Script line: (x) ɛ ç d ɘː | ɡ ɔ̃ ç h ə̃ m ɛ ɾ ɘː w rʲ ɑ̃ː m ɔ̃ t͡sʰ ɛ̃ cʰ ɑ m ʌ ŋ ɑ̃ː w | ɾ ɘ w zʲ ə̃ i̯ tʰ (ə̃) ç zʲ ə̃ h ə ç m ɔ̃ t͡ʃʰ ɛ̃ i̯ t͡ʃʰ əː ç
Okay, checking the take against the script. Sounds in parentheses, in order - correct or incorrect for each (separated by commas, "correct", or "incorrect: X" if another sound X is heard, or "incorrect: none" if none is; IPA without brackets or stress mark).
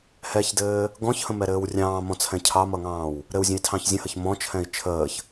incorrect: h, incorrect: ɑ̃